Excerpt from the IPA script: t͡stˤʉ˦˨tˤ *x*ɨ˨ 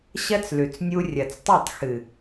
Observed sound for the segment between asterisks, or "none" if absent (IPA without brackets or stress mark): x